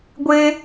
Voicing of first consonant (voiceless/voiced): voiced